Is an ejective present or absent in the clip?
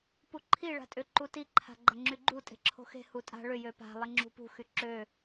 present